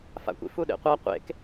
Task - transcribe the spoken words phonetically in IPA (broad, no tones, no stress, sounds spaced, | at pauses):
f a̰ kʷ ḭ f u ɗ ḛ qʷ a qʷ ḛ k